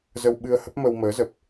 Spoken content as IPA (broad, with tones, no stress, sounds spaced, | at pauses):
z ə˧ w ɓ ɨ˧ ə̯ h ə˦˥ p̚ m ə˧ w m əː˨˦ z ə˨˩ p̚